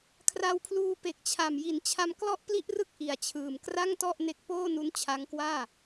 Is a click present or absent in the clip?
absent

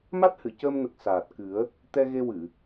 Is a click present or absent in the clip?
absent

